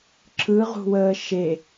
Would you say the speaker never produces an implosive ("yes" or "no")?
yes